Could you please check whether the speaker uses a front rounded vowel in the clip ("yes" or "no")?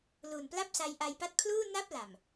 no